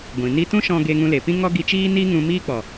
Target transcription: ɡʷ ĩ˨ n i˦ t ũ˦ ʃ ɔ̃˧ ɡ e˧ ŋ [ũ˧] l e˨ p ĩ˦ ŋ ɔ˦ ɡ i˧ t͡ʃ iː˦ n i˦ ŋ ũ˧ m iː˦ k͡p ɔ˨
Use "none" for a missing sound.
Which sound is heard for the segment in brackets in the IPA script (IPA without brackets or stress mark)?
ũ˧